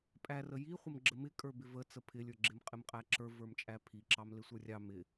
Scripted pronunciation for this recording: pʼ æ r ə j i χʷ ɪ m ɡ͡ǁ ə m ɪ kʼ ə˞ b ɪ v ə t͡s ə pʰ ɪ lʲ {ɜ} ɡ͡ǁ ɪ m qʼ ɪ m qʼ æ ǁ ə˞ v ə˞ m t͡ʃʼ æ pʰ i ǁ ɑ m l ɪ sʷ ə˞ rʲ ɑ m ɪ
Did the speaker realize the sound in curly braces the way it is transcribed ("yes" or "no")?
no